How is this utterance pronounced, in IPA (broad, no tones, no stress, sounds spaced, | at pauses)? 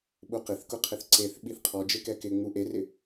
ɓ u q ɪ θ k ʊ qʰ ɪ θ ǀ e θ ɓ i θ qʰ ɔ d͡ʒ ɪ k ɛ k ɪ ŋ͡m u ʔ e r ɪ